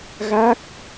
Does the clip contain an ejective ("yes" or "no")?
no